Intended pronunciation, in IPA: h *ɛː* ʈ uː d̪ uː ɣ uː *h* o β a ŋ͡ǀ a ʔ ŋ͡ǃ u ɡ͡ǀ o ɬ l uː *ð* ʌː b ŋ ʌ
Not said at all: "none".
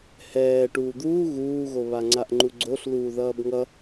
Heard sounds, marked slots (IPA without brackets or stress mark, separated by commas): ɛː, ɣ, ð